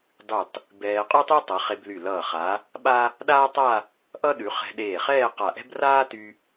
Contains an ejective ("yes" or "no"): yes